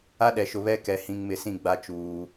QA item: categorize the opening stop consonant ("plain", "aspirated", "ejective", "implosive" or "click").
implosive